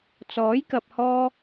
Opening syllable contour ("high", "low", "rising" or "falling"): rising